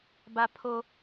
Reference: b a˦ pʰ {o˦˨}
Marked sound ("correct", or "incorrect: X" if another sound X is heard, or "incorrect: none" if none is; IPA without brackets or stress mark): incorrect: o˦